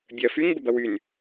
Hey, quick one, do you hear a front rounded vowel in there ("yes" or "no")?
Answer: yes